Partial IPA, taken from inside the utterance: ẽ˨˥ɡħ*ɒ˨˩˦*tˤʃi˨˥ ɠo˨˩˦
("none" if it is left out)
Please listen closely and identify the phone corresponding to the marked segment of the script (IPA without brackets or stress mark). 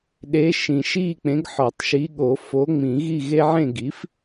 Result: ɒ˨˩˦